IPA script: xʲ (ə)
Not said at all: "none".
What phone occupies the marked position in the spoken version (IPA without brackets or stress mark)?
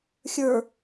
ə˞